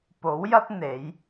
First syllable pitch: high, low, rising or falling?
rising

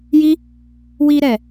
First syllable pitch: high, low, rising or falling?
high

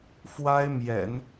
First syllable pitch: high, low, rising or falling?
high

